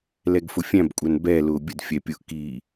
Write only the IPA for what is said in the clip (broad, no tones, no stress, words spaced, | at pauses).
lɛɡfʊfʲæ̃bkʷʼæn bɛlʊː bʲədfʲɛ pʲʊʔkiː